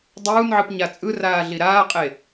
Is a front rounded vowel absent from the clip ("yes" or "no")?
yes